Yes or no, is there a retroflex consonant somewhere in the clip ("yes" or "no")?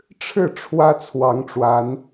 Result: yes